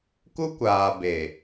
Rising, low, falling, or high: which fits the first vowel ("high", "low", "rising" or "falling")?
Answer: high